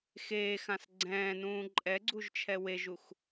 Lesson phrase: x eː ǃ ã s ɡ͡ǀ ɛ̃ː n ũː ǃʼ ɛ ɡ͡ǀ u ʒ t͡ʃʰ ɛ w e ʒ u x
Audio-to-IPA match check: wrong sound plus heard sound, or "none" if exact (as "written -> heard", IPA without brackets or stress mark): ǃ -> x